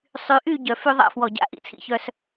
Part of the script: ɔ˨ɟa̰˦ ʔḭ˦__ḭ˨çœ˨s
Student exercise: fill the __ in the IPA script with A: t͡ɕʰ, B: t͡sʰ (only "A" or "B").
B